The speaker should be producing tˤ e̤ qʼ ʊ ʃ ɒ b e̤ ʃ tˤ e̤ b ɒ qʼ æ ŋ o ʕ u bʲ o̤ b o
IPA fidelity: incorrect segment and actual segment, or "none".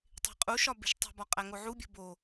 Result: ʊ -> u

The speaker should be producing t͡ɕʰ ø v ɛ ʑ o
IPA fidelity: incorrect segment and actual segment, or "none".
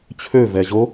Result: none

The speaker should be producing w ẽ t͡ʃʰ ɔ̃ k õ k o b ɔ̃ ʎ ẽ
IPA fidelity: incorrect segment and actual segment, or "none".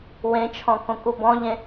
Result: o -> u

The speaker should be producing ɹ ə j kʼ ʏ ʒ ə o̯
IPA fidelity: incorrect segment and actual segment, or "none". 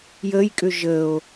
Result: ɹ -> j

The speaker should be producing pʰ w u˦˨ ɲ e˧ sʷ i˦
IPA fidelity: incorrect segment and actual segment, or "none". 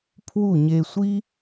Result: none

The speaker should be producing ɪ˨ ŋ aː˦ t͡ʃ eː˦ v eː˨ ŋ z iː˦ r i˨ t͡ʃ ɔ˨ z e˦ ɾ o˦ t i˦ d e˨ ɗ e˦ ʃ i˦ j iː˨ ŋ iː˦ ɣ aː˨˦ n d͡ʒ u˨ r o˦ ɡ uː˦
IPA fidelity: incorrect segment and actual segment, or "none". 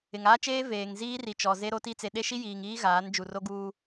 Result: d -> t͡s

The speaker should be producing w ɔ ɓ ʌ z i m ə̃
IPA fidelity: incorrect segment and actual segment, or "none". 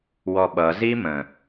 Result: none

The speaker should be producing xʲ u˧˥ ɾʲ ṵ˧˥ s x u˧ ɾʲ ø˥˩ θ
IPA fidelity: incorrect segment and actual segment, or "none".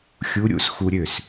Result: θ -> s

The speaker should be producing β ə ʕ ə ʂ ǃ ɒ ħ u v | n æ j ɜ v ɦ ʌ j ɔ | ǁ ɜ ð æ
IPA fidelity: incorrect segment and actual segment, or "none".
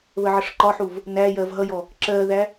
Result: none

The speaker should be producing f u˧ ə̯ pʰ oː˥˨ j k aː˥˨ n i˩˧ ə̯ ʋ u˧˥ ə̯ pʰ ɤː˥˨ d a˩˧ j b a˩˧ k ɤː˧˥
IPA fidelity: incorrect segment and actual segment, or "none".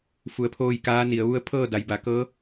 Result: aː˥˨ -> aː˧˥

